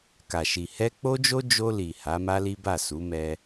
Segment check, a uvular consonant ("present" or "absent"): absent